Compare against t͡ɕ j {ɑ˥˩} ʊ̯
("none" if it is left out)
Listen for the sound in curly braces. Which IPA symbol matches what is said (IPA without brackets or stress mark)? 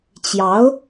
ɑ˧˥